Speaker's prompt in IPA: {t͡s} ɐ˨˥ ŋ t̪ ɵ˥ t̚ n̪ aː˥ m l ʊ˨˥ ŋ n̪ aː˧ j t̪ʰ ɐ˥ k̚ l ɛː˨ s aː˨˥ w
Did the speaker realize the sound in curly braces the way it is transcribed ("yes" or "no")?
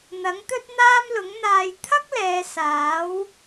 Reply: no